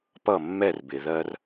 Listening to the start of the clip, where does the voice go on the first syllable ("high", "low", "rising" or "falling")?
falling